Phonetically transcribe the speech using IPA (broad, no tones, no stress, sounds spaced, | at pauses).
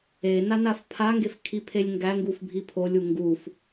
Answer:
e n a n a f pʰ a ŋ ɡ e f kʰ i pʰ e lʲ ŋ ɡ æ ŋ ɡ u f bʱ i pʰ o lʲ u ŋ ɡ u f